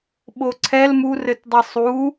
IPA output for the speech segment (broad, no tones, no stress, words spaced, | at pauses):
ɓoǀʰɛl murɘtdˤe sˤu